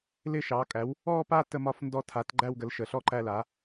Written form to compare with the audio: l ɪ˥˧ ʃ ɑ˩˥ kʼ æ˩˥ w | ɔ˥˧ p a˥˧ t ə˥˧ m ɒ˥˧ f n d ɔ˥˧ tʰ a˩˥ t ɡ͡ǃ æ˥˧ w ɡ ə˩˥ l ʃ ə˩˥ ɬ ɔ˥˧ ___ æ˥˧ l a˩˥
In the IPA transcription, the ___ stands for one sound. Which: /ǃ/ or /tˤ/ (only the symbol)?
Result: ǃ